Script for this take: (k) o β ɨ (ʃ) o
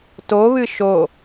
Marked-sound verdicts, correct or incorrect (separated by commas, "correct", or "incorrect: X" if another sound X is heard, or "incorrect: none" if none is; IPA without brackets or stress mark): incorrect: t, correct